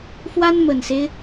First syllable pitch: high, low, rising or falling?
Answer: high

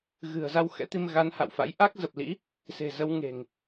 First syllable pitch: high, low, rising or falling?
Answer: low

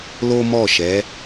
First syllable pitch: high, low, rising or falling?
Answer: high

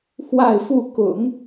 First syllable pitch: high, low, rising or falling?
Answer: falling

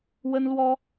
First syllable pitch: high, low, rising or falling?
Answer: high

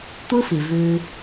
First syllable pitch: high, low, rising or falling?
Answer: high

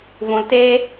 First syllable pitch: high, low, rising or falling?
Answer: low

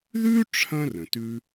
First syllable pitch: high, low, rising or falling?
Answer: high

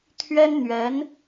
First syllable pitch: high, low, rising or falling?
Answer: high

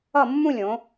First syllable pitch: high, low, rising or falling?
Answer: falling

